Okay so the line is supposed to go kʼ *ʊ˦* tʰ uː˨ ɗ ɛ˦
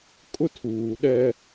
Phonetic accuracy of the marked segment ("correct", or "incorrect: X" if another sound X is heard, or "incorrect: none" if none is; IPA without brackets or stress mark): correct